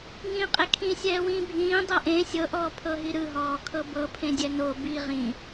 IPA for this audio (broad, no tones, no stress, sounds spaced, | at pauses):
ŋ ĩː qʼ e kʰ ĩ sʲ ɛː w ĩː bʱ ĩː dˤ ɤ ʔ ẽ sʲ ɤ ʔ ɔː pʰ ɤ ɦ i ɾ ɯ ɦ ɔː kʰ ɤ b ɤ pʰ ẽ dʲ ɛ n o b i ʁ ĩ